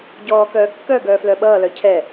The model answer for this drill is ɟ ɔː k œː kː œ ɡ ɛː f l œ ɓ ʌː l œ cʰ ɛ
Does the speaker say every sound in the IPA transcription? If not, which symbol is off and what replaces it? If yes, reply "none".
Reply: ɛː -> œː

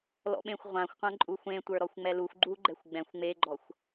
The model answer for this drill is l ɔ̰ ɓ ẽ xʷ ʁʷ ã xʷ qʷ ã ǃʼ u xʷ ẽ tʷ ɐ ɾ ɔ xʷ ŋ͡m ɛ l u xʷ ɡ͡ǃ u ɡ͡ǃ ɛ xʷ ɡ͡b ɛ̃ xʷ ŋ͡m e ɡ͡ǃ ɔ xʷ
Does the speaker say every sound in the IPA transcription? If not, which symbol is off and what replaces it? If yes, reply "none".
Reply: ɐ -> ə˞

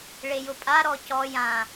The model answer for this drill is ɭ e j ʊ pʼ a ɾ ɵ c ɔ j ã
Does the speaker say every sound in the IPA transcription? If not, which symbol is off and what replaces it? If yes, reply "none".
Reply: ɵ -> ɔ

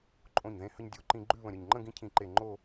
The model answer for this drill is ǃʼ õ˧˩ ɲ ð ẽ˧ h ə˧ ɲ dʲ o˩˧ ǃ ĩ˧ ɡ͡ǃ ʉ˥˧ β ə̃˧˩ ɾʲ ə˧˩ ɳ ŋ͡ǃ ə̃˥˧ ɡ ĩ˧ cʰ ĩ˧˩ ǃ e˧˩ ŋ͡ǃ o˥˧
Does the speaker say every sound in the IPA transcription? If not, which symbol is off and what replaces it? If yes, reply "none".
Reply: ɳ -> ɲ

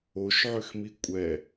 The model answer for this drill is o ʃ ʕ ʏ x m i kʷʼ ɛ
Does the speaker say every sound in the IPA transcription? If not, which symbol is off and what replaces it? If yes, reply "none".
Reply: none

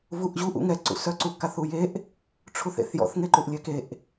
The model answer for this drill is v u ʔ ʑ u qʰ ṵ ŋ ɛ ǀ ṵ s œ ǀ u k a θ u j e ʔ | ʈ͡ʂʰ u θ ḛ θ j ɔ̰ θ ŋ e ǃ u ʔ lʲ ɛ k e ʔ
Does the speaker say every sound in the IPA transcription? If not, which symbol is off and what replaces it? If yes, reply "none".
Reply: qʰ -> ʔ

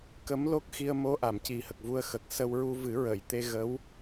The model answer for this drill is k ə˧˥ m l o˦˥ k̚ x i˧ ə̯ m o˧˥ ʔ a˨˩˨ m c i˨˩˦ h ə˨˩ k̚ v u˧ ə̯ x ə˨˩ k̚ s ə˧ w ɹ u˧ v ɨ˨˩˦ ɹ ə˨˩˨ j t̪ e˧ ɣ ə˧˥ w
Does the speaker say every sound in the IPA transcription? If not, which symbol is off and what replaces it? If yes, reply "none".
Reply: none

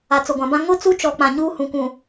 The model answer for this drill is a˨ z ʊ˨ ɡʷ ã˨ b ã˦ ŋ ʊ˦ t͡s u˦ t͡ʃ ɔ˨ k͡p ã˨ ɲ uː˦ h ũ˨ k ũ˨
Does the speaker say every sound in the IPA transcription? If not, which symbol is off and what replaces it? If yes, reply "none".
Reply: z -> t͡s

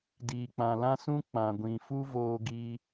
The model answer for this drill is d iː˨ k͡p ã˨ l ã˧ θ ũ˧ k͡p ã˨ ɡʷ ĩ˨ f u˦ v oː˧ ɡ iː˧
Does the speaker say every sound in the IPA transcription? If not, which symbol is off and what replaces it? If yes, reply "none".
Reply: θ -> s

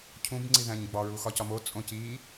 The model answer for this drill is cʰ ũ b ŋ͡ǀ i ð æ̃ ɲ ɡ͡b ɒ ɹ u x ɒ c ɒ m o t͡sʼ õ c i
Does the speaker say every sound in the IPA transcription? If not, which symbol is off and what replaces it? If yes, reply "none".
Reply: none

